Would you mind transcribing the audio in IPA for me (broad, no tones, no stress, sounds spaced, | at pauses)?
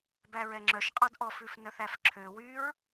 b æ ɹ ɛ ŋ͡ǁ œ ʃ qʼ ɑ d ʔ ɔ f ʉ f n œ θ æ f ǁʰ ø w y ɹ